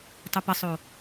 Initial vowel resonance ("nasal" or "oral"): oral